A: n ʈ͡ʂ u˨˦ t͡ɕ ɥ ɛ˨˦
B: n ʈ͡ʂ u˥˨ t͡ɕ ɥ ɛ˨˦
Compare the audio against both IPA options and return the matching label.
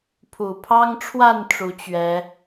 A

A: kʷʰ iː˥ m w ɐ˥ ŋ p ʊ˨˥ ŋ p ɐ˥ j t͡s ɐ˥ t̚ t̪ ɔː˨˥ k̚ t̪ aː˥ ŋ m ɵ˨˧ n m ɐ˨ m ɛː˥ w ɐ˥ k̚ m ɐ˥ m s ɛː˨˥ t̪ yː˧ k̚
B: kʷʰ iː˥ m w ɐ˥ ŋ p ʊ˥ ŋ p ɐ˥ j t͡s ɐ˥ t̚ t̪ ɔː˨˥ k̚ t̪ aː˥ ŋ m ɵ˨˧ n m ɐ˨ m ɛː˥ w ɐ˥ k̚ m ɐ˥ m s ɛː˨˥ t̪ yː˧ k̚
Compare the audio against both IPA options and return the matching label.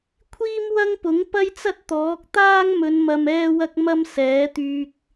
A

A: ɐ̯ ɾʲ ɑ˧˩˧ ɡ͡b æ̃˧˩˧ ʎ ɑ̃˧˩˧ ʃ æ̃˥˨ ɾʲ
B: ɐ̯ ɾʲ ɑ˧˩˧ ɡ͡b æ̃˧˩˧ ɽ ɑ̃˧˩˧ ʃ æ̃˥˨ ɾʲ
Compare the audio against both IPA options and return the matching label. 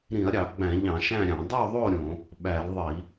A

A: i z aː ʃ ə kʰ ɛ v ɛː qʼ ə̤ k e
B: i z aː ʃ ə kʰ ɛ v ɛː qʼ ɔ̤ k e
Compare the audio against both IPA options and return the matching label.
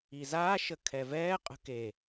A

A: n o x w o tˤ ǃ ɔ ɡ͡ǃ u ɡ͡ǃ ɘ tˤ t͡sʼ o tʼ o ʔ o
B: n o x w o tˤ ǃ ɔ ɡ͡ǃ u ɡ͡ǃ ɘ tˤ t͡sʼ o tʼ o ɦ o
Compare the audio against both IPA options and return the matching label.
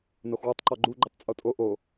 A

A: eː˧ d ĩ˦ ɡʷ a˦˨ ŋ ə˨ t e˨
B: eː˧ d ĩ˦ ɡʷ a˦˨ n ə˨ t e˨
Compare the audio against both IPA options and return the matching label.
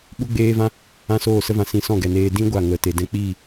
A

